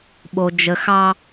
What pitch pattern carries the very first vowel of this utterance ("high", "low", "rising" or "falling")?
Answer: high